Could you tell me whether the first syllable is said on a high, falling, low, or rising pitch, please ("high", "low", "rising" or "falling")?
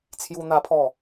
high